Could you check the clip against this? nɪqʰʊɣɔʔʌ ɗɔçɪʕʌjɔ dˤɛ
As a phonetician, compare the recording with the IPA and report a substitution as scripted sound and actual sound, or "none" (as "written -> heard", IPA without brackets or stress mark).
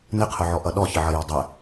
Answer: ɣ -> ʕ